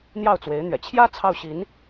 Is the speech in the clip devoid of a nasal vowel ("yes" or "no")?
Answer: yes